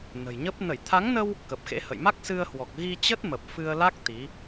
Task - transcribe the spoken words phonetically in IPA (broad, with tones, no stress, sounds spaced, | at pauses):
n ə̤˨˩ j ɲ ə˦˥ p̚ n ə˧˩ j t̪ʰ a˨˦ ŋ n ə˧ w | k ə˨˩ p̚ x ḛ˧˥ h ə̰˧˨ j m a˦˥ k̚ s ɨ˧ ə̯ h w ɔ˨˩ k̚ ɣ i˧ t͡ɕ ə˦˥ t̚ m ə˨˩ p̚ f ɨ˧ ə̯ l a˦˥ k̚ t̪ i˨˦